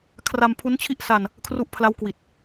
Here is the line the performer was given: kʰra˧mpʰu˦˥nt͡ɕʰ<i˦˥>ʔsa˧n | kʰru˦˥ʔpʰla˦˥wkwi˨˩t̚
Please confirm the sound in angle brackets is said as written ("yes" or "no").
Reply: no